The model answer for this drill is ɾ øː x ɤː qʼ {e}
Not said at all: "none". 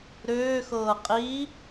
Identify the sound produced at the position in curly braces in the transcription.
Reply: i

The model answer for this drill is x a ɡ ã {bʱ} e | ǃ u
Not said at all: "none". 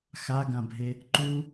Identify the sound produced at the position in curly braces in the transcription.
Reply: bʱ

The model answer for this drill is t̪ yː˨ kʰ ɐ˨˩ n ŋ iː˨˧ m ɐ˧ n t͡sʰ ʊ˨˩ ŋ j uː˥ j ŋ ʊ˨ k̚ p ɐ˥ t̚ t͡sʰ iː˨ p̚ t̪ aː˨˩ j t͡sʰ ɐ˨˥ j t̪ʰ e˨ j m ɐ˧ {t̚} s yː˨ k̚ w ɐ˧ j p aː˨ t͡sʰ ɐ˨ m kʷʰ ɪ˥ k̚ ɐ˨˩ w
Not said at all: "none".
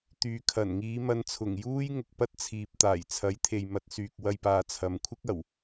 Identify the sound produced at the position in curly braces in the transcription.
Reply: t̚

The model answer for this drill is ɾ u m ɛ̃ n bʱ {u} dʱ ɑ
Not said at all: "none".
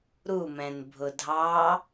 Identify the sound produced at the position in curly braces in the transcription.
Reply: ʊ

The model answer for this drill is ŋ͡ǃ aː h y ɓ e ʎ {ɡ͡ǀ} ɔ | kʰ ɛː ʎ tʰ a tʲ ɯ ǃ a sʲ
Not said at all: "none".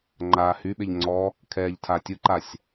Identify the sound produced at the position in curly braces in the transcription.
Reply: ŋ͡ǀ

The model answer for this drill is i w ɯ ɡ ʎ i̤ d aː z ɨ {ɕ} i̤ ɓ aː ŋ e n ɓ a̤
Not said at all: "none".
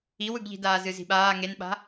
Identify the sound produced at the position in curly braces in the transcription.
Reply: z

